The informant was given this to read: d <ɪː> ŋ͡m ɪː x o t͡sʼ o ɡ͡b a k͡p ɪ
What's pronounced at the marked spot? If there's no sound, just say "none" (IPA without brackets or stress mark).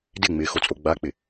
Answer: ɪ